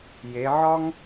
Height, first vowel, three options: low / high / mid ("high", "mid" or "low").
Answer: mid